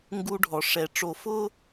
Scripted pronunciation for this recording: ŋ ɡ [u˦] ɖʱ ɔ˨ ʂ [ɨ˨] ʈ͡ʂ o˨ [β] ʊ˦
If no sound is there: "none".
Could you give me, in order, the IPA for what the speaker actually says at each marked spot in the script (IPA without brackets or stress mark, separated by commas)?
u˦, ɛ˨, f